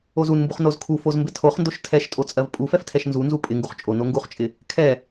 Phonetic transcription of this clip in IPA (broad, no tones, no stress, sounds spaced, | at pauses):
o z u n m b u χ n o z kʰ u f o z m b ɪ tʰ o χ n d o ʃ tʰ ɛ ʃ tʼ o t͡sʼ ɜ v pʼ u f ɛ f tʰ ɛ ʃ n z u n z u pʼ ɪ ŋ ɡ u χ t͡ʃʼ o n o ŋ ɡ u χ t͡ʃʼ ɪ | kʰ ɛ